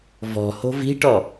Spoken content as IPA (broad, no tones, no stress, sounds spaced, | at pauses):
v ɔ̤ h o̤ v i̤ ʈ ɔ